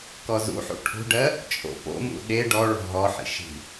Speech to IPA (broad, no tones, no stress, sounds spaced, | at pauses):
k ɔ z ṵ ħ ṵ ʈʰ ṳ ɖ ɜ | t͡ʃʼ o̰ p o̰ m ṵ ɗ e ɖ ɔ ɭ ɔ̤ ɦ ɔ ħ ḭ ʃ i̤